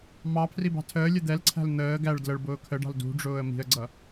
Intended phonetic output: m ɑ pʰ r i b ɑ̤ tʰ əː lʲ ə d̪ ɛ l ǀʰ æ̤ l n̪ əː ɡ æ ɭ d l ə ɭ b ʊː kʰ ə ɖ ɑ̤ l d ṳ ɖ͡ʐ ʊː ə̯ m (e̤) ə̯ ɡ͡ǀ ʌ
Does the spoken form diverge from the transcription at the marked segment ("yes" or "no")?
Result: yes